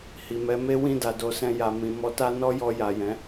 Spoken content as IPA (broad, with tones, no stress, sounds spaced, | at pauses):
h i˨ m ɛ˨˦ m e˦ w ĩ˦˨ d a˨ d o˨˦ s ɛ̃˧ j a˨ m ĩ˨ m ɔ˧ t a˦ n ɔ˦ j ɔ˧ j a˨ j ɛ̃˨˦